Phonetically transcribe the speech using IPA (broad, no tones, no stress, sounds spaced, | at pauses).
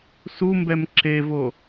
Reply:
s u m b ɛ m ǁ e v o